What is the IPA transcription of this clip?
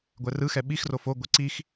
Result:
ɡʷ ɛ r ɯ x ɛ ɓ i x r o f o ɡʷ e ǀ i x

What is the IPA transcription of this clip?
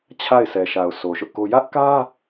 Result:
t͡ɕʰ a˦˨ ɪ̯ s ɛ˨ ʃ a˨ ʊ̯ s o˨ ʃ ʊ˦ ʔ k o˦ j ä˦ ʔ k ä˦

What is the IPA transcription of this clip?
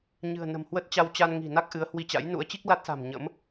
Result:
ɲ ɨ̤˨˩ ə̯ n ə̤˨˩ m h w ə˦˥ t̚ t͡ɕ a˧ w t͡ɕ a˧ n ŋ i̤˨˩ n a˦˥ k̚ ʔ ɨ˨˦ ə̯ h w i˧ t͡ɕ a̰˧˥ j n ṵ˧˥ ə̯ t͡ɕ i˦˥ k̚ l a˦˥ t̚ s a̤˨˩ m ɲ ə̰˧˥ m

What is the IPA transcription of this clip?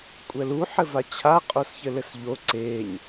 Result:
kʷʼ ɛ l u ħ ɘ v a t͡ɕʰ a qʼ o s ç ɘ l ɘ s ʎ o ǀ e ɲ

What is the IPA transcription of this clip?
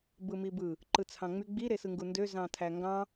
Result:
b ɯ m i b ɯ | ǃ ɯ t͡sʰ ɑ̃ ŋ͡m y ɡ͡b i ɾ e s ɯ ŋ ɡ u n d ø z ɑ̃ tʰ æ ŋ ɡ ɑ̃

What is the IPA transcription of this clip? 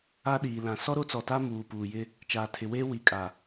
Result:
a˦ ɗ iː˨ l ã˨ s ɔ˦ ɾ o˦ t͡s ɔ˨ t a˦ m uː˨ p uː˨ j ɪ˦ | t͡ʃ aː˨ tʰ ɪ˨ w eː˦ w i˨ kʼ a˨

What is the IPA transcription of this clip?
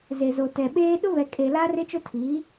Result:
z e˨ z o˨ t ɛ˨ ɓ eː˦ ɗ ʊ˦ β ɛ˨ kʼ e˨ l a˦ r ɪ˦ t͡ʃ o˦ tʰ iː˨˦

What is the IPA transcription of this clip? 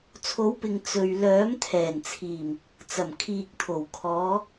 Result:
t͡sʰ o˨˥ w p ɪ˨ ŋ t͡s ɵ˨ ɥ l œː˨˥ m t̪ʰ ɛː˨˩ n t͡sʰ iː˨˩ m | t͡s ɐ˨˩ m kʰ iː˨ k̚ t̪ʰ o˨˩ w kʰ ɔː˨˧

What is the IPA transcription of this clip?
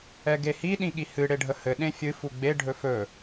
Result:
ɛ ɡ e h i ɗ ĩ ɠ i h ɨ ɽ e ɖʱ ə h ɘ ɗ ẽ fʲ ɨ f u ɡ͡b e ɖʱ ɵ f ɵ

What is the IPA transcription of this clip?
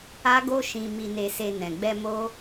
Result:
a˦ ɡ o˦ ʃ ĩ˧ m i˧ n e˧ s e˧ n ɛ̃˨ ɡ͡b ɛ˧ m o˦

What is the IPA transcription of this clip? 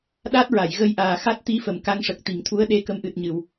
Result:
ɗ a˦˥ t̚ ɹ a˨˩˨ j ɣ ə˧ j ʔ aː˨˩ x a˦˥ t̚ t̪ i˧˥ f ə˨˩˨ m k a˧ ŋ ʂ ə˨˩ k̚ t̪ i˨˩˨ ŋ t̪ʰ u˧˥ ə̯ ɗ e˧˥ k ə˧˥ m ʔ ɨ˨˩ t̚ ɲ ɨ˨˩˨ w

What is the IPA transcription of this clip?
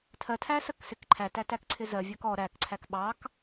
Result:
tʰ ɜ tʰ æ s ɜ k s ɪ k ǃʰ æ t æ t æ k ǀʰ ɪ z ɜ vʲ ɜ k ɔ ɾ æ k ǀʰ æ k ɓ ɑ k

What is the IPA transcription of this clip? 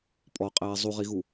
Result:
pʼ ɔ qʼ ɛː zˤ u ʁ i ɣ u

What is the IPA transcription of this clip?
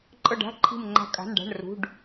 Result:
ǃʼ ɤ˦˨ ɖ a̤˧˥˧ ǃʰ i̤˦˨ m ŋ͡ǃ a̤˦˨ kʼ a̤˧˥˧ n ɖ a̤˧˥˧ ɳ r ṳ˧˥˧ ɖ

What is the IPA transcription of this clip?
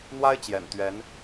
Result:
n̪ w a˥ ɪ̯ t͡ɕ j ɛ̰˨˩ n t̪ ɥ ɛ˧˥ n

